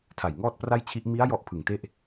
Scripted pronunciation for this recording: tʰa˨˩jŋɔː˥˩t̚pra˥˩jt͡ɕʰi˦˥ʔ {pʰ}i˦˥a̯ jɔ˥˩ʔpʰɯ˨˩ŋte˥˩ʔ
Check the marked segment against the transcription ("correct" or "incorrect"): incorrect